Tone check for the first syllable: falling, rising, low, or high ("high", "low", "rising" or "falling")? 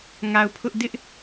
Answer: low